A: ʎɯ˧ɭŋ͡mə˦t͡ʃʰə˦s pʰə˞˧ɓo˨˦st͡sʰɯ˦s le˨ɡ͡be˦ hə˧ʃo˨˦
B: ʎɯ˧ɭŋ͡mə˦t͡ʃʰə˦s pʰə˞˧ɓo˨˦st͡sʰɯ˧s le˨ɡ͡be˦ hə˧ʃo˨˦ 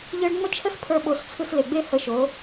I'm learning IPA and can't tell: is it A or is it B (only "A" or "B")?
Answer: B